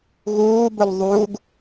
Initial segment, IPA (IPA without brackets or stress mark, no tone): ɣ